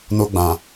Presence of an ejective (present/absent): absent